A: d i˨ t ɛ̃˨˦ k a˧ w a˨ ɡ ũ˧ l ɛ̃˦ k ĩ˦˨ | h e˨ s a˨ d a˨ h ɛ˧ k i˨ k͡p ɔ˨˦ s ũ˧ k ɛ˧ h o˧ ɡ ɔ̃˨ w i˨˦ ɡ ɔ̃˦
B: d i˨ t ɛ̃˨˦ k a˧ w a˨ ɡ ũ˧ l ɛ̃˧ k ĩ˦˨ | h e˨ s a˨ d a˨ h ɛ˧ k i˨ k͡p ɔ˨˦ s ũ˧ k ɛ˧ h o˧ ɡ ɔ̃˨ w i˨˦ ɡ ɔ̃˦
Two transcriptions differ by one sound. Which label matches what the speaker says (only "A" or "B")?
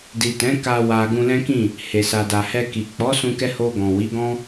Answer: A